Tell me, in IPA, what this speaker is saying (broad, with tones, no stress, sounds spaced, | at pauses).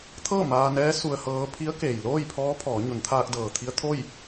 t̪ʰ ɤː˥˨ m aː˧ n ɛː˧˥ s u˧ ə̯ h ɤː˧˥ pʰ i˧˥ ə̯ k eː˩ j l oː˥˨ j pʰ ɔː˧˥ pʰ ɔː˩˧ ɲ o˩˧ n t̪ʰ aː˧ k̚ d ɤː˩ t̪ʰ i˧ ə̯ t̪ʰ o˥˨ j